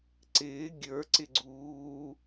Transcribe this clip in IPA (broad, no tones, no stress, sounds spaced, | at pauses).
ǀ ɪː ɡʲ ə˞ ǀ ɪ ɡ͡ǀ uː